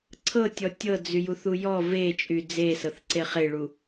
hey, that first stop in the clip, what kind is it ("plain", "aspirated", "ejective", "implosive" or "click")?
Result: click